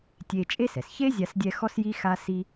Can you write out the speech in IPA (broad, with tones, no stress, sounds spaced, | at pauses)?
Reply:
tʲ e˧ t͡ʃʼ e˥ s ɛ˩ s ç e˥ zʲ a˧ s dʲ ɛ˧ x ɔ˥ s j i˥ x a˥ s i˥